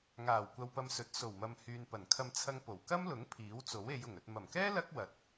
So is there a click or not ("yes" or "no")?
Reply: no